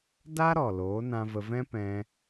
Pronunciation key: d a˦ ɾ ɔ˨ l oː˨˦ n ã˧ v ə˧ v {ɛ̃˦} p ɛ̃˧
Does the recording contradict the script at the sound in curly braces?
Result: no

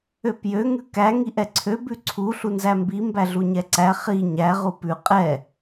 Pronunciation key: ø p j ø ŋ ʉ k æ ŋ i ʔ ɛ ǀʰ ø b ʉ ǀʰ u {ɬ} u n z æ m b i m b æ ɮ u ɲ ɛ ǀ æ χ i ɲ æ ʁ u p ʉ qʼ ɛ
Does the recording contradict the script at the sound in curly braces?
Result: no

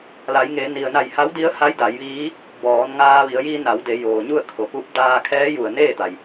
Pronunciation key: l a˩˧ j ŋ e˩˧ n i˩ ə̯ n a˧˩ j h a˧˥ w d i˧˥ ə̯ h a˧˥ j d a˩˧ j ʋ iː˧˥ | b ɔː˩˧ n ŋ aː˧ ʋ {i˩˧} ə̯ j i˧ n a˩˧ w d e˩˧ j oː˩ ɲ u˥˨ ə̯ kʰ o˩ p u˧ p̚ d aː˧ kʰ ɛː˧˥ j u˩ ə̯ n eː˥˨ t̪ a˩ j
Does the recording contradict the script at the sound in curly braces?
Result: no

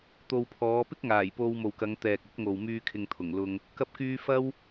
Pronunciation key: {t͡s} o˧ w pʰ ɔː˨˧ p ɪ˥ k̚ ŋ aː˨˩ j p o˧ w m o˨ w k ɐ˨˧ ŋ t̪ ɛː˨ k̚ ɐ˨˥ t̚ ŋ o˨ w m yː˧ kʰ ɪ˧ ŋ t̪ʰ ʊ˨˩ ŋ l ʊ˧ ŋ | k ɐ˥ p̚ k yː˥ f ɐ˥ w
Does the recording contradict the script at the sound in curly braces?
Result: yes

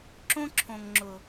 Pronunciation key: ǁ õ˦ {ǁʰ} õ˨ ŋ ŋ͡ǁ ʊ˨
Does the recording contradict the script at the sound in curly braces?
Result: no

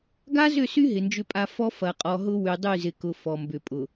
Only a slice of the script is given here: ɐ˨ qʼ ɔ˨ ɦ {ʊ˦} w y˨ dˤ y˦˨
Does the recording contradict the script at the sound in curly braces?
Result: no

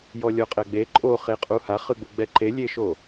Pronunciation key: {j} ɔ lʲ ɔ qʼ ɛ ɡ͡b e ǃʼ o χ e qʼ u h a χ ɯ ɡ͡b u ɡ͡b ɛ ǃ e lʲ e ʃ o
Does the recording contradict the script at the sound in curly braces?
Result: no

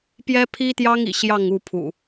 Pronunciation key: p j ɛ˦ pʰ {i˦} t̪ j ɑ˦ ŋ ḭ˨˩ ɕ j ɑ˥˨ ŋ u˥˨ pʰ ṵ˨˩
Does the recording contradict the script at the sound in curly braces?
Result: no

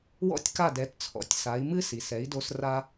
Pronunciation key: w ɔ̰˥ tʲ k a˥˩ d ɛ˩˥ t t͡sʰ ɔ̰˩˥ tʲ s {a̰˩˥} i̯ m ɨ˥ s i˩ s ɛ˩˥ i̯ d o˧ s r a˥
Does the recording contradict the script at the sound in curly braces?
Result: yes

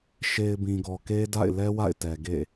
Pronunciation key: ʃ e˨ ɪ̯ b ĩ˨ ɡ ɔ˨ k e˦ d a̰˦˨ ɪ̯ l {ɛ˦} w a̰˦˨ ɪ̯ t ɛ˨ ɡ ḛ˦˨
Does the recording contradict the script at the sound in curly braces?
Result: no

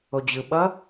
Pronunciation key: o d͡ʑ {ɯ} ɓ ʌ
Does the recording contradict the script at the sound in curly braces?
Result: no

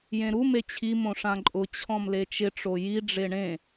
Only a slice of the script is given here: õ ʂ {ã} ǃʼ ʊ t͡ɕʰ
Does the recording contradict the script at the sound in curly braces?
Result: no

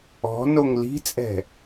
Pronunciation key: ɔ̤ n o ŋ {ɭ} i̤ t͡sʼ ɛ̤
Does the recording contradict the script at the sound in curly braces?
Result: yes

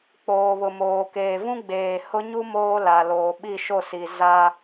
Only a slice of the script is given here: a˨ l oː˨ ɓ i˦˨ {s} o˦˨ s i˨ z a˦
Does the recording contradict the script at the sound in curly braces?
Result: yes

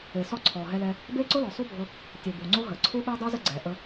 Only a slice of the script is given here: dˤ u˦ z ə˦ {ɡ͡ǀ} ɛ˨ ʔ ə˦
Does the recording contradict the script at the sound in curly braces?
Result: no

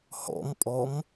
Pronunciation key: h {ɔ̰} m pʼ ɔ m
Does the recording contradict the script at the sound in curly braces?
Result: no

